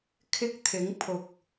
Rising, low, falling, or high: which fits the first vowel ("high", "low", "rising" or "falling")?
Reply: high